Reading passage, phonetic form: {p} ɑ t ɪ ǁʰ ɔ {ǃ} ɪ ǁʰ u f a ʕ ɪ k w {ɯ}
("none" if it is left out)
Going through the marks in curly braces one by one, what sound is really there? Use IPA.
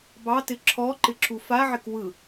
b, ǃ, ɯ

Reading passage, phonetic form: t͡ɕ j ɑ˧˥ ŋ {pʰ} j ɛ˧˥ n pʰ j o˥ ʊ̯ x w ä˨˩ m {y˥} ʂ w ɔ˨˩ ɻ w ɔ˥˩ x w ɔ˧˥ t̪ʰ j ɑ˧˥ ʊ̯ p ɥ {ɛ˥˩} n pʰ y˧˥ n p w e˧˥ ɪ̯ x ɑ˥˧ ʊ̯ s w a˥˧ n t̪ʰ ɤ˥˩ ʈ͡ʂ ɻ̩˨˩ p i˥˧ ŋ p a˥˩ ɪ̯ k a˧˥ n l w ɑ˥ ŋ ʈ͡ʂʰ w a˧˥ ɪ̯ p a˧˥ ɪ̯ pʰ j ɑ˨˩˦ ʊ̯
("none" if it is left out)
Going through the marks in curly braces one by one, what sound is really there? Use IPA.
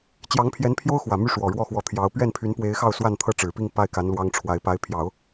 pʰ, y˥˩, ɛ˥˩

